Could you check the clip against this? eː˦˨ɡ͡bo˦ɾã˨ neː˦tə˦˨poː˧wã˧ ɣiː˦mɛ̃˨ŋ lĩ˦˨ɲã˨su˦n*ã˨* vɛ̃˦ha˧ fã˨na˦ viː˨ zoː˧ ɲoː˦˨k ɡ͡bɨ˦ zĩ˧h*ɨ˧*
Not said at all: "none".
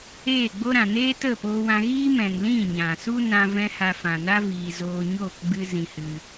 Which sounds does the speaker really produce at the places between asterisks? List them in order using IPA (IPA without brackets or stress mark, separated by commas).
ã˧, ɨ˧